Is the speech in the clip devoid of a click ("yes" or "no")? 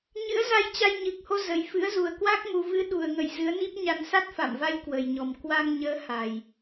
yes